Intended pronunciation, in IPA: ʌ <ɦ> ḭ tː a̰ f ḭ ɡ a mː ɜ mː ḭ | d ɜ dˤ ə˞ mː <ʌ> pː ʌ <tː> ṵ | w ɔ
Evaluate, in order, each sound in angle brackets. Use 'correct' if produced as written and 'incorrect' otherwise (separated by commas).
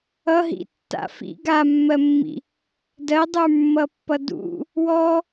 correct, correct, incorrect